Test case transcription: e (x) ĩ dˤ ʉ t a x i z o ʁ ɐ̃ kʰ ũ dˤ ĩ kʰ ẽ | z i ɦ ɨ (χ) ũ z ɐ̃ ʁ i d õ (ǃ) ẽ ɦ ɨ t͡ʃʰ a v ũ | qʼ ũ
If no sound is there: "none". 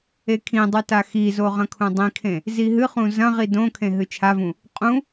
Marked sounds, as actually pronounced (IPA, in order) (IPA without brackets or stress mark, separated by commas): kʰ, χ, kʰ